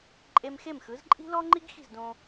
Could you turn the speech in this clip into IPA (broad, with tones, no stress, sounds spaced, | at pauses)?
ǃʼ e˧ m x e˥˩ m x ɯ˩˥ z ǃʼ i̤˥ l ɔ˥ ŋ͡ǃ i˥ ɡ x i̤˥˩ z d õ˧